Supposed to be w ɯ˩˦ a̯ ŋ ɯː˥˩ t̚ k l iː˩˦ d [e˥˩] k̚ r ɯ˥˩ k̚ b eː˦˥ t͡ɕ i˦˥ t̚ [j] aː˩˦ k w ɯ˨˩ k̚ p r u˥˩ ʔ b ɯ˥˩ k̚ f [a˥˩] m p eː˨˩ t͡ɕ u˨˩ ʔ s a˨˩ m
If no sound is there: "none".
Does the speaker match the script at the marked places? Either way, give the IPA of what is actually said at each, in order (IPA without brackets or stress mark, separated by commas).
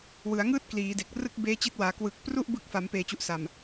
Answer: e˨˩, w, a˩˦